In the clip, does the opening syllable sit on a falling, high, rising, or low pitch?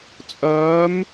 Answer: rising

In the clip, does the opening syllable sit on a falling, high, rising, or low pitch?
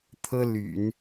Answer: high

